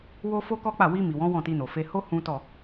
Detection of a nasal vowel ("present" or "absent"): present